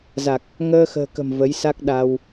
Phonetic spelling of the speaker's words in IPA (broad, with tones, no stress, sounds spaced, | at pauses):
z a˨˩ k̚ | ŋ əː˧ x ə̤ː˨˩ k ə̤˨˩ m v ə˨˦ j s a˦˥ k̚ ɗ a˧ w